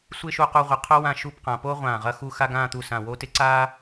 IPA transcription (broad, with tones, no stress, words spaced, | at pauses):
sʷɪː˥ʃu˧qu˧ʁʷɪ˩˧ qʰo˥ wã˥˧ʃuː˥˧pqã˩˧ po˥ ʁʷãː˧˩ʁɐ˥˧xu˥˧ xa˥ɡãː˥˧t̪u˧˩ sã˧˩wo˥˧ tɪ˥ǀaː˥